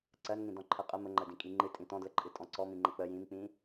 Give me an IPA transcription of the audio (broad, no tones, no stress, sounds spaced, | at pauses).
ǀ ɜ n ŋ ĩ d ɔ̃ ǃʰ ɜ qʼ ə m ə ŋ͡ǃ ə d ĩ kʼ i ŋ͡ǃ ɨ tʼ ĩ t ɔ̃ d l ə ǃʼ ɨ tʼ ɔ̃ ǀ ɔ m ĩ ŋ͡ǃ ə k͡p ə j ĩ m k͡p ĩ